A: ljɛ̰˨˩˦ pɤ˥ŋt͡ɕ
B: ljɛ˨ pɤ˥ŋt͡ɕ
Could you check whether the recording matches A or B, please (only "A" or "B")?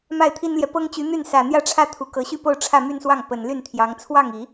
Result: B